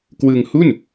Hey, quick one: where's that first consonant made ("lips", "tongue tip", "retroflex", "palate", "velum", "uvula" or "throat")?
velum